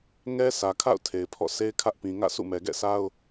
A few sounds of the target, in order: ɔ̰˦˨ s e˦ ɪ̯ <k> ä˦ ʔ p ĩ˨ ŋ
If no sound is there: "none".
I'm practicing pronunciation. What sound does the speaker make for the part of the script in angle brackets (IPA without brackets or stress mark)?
kʰ